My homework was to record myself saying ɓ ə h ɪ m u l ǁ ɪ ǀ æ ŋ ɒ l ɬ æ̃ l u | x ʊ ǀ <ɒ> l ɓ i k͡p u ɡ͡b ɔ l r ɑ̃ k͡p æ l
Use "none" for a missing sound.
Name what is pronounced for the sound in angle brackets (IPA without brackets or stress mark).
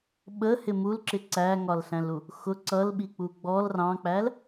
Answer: ʌ